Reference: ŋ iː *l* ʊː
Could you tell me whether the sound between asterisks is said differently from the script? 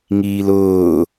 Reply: no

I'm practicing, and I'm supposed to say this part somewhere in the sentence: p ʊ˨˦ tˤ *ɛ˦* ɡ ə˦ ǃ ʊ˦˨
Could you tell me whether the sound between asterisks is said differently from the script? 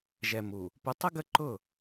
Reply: yes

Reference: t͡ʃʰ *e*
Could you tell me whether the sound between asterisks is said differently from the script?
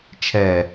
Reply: yes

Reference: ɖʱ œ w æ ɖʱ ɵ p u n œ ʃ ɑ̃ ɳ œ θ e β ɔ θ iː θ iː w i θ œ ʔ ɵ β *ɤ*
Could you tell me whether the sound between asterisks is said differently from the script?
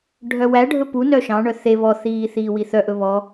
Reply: yes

